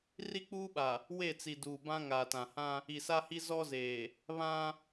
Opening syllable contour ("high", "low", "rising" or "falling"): high